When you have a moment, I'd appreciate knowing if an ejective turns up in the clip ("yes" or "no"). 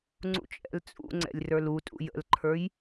yes